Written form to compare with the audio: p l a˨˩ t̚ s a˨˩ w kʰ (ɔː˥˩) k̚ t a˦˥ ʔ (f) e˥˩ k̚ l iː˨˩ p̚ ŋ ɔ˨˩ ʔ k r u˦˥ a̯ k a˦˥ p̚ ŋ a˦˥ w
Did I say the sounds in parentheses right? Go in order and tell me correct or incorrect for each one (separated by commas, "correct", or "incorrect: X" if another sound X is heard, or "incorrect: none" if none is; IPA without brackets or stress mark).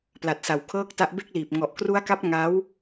incorrect: ɤː˥˩, incorrect: b